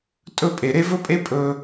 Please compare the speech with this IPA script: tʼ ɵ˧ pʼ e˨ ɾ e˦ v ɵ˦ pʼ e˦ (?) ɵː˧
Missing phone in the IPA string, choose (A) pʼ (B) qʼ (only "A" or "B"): A